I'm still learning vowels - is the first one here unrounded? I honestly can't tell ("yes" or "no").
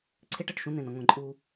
yes